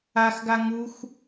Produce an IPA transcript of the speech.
a x ɡ a ŋ u x

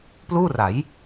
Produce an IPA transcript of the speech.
p l uː˥˩ r a˩˦ j

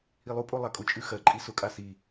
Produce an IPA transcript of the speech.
i lˠ u pʼ o lˠ a kʼ ʊ t͡ʃʼ ʉ x ɜ ǃʼ i s ʊ kʼ a s i

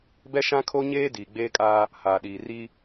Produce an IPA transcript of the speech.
b ɛ˦ ʃ ã˦ kʰ o˦ ɲ eː˦ d iː˨ ɡ͡b eː˦ kʼ aː˦ | h aː˨ ɗ iː˨ r i˦

